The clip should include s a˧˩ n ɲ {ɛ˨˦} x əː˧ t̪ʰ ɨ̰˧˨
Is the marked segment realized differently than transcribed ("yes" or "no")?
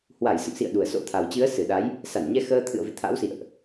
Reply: yes